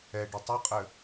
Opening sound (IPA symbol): ɛ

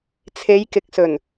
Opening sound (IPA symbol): t͡sʰ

